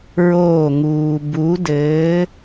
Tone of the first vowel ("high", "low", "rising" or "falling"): falling